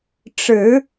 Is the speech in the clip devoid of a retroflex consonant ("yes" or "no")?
no